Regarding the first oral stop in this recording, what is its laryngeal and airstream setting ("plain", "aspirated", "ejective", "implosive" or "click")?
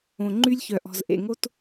click